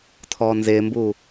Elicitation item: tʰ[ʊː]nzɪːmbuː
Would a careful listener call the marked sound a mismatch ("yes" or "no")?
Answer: yes